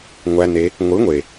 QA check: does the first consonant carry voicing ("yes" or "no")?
yes